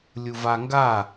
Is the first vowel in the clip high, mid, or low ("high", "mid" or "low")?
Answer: high